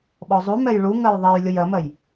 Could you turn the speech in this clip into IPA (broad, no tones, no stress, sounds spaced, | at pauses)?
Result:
ɓ ɔ zˤ u m ɛ j ɭ u ŋ ɜ j ðˤ ɛ j lʲ ʊ j ɜ m ɜ j